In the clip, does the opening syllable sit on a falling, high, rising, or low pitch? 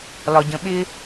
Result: low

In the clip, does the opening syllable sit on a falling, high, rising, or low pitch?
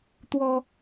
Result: high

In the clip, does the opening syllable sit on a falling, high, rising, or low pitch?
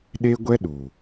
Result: high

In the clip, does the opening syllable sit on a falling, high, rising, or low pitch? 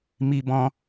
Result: high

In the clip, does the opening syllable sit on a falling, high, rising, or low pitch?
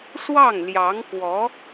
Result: falling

